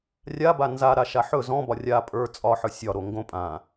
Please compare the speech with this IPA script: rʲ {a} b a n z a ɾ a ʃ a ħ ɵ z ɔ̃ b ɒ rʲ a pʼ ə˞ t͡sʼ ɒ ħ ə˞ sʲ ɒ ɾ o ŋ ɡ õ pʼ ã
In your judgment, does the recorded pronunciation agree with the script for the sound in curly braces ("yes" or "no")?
yes